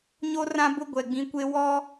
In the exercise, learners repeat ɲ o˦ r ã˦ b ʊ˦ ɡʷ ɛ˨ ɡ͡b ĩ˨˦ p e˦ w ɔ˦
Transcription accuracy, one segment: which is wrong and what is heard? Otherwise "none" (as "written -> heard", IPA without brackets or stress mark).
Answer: p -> kʷ